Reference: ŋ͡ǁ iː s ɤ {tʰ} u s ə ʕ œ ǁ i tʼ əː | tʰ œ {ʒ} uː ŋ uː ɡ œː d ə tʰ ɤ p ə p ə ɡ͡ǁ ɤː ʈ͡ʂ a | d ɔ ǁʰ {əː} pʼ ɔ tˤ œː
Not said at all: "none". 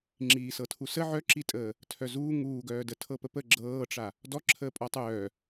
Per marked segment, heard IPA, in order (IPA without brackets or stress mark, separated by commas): tʰ, z, əː